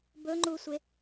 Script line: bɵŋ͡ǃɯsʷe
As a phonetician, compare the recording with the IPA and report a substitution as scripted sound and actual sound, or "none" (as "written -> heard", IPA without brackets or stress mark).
ɯ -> u